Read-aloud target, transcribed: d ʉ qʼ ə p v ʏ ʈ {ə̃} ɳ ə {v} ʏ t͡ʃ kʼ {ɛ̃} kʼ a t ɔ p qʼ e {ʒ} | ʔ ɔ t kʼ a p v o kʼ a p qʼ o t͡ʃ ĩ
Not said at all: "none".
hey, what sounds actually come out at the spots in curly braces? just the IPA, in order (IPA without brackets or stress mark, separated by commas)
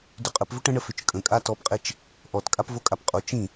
ə̃, f, ə̃, t͡ʃ